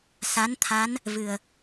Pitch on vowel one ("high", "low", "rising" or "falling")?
rising